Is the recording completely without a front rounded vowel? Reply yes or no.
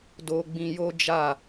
yes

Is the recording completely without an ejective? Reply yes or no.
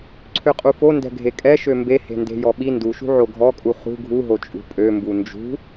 no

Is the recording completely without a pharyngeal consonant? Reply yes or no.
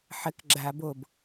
no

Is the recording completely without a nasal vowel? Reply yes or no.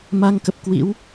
yes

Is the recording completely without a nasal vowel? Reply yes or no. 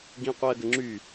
no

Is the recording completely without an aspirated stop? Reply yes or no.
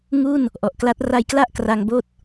yes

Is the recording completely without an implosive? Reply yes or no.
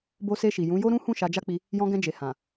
yes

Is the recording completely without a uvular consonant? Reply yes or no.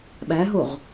no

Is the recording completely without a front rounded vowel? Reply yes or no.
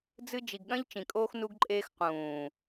yes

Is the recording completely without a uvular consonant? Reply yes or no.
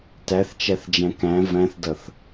yes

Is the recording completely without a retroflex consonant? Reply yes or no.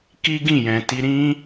yes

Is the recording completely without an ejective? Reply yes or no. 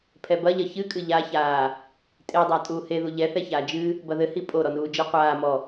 no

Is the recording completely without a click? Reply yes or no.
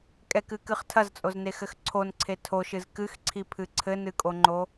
no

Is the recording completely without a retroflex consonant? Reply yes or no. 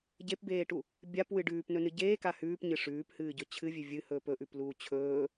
no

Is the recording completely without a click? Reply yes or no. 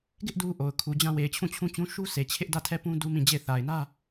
yes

